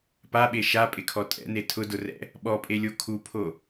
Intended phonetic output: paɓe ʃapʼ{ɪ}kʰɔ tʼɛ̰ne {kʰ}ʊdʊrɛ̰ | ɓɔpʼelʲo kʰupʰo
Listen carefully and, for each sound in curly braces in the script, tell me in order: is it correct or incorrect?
correct, incorrect: tʰ

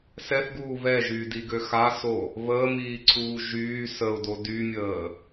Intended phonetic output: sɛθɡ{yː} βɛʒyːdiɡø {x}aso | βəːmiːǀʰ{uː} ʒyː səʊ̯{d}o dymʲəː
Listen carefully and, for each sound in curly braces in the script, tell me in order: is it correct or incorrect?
incorrect: uː, correct, correct, correct

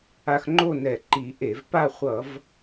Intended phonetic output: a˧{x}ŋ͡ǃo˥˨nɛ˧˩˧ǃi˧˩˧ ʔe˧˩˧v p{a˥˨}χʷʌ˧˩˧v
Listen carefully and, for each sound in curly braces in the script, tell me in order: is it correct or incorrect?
correct, correct

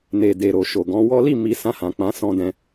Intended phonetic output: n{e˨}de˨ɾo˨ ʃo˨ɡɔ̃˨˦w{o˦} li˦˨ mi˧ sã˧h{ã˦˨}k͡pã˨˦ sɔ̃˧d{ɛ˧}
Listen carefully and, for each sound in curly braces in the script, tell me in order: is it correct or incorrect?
correct, incorrect: ɔ˦, incorrect: ã˨, incorrect: ɛ̃˧

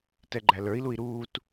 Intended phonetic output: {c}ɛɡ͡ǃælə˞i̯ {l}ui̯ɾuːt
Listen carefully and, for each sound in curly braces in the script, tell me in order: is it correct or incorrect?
incorrect: t, correct

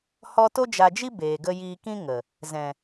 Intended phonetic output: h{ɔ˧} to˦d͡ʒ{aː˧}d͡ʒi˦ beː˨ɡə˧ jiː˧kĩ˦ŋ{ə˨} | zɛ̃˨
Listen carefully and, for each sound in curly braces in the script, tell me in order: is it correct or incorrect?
correct, incorrect: a˧, correct

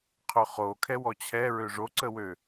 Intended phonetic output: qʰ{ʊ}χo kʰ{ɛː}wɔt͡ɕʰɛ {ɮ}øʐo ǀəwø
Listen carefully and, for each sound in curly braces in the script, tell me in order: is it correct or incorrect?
correct, incorrect: ɛ, incorrect: ɹ

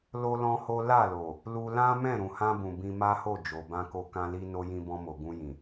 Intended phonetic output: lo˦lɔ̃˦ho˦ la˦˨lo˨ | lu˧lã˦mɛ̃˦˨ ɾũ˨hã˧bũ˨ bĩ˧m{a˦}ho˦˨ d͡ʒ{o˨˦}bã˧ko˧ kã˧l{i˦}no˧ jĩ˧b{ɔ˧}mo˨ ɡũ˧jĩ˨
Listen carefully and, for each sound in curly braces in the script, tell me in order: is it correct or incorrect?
correct, incorrect: o˨, incorrect: i˧, incorrect: ɔ̃˧

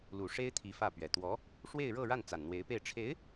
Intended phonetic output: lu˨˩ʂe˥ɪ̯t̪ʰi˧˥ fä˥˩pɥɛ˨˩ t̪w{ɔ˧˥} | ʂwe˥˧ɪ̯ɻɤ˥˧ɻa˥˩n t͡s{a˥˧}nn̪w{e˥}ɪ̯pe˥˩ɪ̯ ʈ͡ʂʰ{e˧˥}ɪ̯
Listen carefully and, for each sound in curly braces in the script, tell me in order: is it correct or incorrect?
correct, incorrect: a˨˩, incorrect: e˧˥, correct

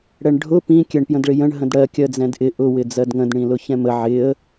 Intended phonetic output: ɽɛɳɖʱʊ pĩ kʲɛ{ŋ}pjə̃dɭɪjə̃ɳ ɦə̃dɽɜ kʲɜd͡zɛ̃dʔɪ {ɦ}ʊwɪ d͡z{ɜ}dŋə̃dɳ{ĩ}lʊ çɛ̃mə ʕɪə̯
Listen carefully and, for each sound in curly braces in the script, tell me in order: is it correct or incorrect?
incorrect: ɳ, incorrect: ʔ, correct, correct

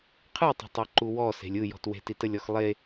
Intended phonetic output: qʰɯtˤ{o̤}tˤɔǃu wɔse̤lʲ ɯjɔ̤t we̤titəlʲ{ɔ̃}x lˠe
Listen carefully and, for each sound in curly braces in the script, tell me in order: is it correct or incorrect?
correct, incorrect: ɔ

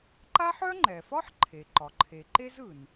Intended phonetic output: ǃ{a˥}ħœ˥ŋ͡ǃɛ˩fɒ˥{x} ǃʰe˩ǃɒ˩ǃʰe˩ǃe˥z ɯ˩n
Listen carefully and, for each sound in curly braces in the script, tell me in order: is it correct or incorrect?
correct, incorrect: ħ

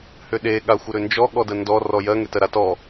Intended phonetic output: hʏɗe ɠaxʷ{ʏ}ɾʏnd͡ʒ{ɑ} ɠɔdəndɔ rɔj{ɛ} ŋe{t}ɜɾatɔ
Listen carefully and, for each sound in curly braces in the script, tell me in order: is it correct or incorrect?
incorrect: ə, incorrect: ɔ, incorrect: ɜ, correct

